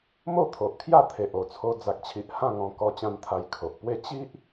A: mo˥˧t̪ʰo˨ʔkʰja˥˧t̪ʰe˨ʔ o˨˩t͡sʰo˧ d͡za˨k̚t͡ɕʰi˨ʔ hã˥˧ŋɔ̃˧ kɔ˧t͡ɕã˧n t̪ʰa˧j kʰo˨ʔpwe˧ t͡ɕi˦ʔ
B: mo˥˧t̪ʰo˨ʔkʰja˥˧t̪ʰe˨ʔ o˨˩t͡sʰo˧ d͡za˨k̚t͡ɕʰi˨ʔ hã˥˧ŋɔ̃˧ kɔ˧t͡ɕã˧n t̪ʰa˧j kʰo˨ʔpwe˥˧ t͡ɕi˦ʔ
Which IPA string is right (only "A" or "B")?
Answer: B